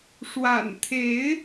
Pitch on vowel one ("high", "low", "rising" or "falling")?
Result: low